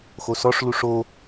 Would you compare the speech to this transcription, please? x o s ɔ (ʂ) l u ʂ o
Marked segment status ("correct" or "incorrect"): correct